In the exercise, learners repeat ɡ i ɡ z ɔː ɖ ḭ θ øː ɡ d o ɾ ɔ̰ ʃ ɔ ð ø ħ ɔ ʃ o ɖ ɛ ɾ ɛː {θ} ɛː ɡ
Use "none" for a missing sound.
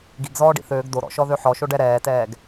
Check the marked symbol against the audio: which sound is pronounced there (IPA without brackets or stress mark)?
t